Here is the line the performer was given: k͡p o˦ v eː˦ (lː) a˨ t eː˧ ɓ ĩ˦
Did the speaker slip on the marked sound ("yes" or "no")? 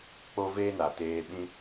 yes